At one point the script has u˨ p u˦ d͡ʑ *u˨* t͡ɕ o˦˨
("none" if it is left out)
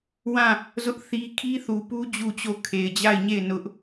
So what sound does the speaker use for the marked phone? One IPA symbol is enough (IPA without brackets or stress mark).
u˦˨